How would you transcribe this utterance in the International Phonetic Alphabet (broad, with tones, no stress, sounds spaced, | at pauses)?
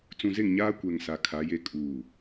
t͡s ũ˨ z e˦˨ ŋ ɲ aː˦ kʷ ɛ˨ ŋ s a˨˦ kʰ a˨˦ j e˦ kʼ uː˨